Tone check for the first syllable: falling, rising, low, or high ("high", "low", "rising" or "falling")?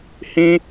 high